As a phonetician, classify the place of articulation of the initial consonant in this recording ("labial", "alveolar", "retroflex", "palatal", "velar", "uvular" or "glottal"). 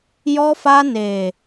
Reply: palatal